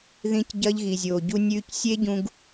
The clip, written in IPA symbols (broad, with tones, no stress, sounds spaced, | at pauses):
ð ĩ˦ c ɟ ɐ˦ ʎ ɣ i˨ zʲ oː˨ ɟ u˧ nʲ ʉː˧ c sʲ e˦ ɟ ũ˧ ɡ